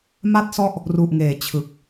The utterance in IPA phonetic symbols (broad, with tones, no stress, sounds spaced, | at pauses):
m a˥˩ t̚ s ɔ˥˩ ʔ | r u˨˩ ʔ ŋ eː˩˦ t͡ɕʰ ɯ˨˩ k̚